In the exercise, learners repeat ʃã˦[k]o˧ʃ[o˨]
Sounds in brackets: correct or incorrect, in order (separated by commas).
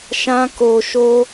correct, incorrect